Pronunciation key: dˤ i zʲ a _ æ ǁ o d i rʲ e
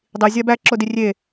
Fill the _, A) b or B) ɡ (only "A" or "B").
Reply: A